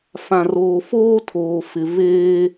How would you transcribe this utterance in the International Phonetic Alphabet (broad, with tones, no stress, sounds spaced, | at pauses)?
f ã˨ r oː˨ f oː˦ tʰ oː˨ f ɪ˨ v eː˦